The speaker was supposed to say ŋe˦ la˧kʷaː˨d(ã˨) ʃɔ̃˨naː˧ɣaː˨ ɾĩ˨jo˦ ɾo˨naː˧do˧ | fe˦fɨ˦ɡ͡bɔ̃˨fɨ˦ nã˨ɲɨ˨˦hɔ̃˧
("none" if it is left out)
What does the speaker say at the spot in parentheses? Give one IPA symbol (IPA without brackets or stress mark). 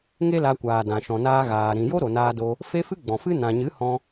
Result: ã˨